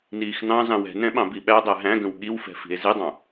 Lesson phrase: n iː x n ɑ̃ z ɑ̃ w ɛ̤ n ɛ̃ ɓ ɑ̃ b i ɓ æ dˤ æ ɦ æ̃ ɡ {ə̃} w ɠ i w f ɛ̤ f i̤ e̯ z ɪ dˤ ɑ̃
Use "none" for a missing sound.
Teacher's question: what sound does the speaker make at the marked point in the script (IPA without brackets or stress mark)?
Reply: ə̃